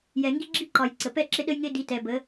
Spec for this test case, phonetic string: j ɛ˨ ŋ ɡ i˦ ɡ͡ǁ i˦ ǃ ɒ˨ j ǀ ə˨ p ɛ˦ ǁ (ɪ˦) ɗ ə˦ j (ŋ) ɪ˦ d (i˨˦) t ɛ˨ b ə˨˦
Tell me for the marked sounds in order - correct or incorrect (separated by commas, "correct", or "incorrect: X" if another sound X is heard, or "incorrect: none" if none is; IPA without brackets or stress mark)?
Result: correct, correct, correct